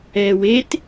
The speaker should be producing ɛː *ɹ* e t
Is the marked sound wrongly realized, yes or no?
yes